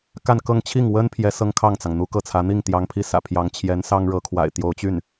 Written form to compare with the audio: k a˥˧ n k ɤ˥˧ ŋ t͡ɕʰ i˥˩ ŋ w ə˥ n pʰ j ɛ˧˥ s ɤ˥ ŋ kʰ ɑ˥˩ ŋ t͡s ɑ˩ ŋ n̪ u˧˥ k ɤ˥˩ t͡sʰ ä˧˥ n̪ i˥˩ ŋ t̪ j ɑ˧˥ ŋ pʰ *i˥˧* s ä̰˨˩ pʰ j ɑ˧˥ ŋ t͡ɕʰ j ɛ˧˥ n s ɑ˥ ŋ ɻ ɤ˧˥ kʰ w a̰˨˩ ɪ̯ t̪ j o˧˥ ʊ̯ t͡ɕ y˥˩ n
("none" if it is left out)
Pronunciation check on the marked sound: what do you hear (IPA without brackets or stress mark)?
i˧˥